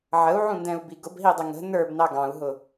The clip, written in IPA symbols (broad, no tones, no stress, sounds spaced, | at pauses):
ʕ ə u̯ ʕ ũ n d ɛ̃ u̯ b i ɡ ʊ b ɦ i dˤ ɪ ŋ ə̤ n ə˞ b n ɑ ɡ ɑ̃ u̯ ɦ ʊ